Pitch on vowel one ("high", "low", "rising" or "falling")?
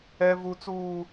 high